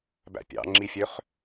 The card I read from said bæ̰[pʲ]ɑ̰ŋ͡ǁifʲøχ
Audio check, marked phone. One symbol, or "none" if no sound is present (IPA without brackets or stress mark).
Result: pʲ